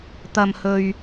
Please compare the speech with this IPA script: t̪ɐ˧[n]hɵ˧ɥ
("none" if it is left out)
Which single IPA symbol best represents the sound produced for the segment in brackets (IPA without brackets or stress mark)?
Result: m